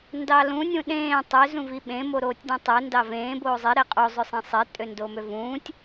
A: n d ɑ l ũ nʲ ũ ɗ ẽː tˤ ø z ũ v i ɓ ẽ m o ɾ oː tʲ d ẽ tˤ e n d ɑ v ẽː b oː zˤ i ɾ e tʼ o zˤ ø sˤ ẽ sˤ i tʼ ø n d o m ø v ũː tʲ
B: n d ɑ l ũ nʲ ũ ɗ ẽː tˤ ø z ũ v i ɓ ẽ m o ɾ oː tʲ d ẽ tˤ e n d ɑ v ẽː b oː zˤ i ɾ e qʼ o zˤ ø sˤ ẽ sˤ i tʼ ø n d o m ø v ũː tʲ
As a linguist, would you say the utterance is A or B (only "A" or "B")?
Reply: B